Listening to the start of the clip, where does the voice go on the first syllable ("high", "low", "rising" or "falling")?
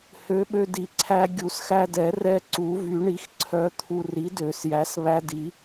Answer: rising